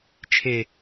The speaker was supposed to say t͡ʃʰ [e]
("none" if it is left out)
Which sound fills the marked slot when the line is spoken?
e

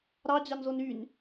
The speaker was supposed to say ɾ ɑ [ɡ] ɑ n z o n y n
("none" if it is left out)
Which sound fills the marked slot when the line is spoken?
d͡ʑ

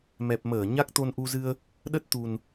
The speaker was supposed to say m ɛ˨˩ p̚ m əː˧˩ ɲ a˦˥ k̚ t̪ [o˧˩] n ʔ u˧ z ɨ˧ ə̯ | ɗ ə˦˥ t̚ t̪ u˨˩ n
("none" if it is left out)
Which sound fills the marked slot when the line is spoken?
o˧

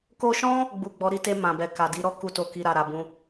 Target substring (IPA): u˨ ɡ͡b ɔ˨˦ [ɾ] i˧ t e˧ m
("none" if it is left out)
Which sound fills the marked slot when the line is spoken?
ɾ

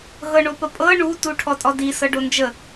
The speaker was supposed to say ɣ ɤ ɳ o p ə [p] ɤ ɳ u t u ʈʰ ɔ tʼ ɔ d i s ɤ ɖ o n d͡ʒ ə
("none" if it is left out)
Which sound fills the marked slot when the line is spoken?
pʼ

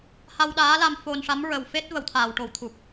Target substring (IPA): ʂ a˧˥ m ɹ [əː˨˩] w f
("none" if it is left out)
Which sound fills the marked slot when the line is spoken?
ə˨˩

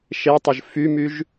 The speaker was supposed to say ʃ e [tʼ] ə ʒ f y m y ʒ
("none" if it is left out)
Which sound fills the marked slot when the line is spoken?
tˤ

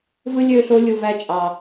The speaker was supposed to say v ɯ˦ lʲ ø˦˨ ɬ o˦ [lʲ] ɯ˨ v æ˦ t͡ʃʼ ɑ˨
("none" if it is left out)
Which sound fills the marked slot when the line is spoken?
lʲ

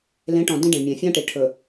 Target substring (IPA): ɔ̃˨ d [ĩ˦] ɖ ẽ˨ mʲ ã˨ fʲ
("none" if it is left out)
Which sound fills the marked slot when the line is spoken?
ĩ˦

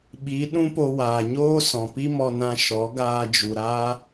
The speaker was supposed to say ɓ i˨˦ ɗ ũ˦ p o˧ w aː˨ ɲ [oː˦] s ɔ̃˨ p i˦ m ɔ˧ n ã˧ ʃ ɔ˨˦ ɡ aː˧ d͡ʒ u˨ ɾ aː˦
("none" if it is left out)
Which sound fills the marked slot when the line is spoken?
oː˦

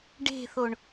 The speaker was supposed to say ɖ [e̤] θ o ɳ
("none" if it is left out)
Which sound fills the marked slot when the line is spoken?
e̤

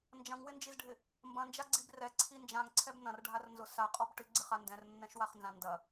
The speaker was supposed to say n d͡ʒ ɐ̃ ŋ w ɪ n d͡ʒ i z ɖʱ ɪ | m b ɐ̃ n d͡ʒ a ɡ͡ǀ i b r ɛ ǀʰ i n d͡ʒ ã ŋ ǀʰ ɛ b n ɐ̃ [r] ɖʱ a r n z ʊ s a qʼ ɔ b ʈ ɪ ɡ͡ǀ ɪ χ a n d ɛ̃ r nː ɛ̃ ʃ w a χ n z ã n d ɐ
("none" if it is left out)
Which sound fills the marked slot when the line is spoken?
r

